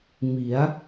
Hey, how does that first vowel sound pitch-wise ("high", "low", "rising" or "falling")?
rising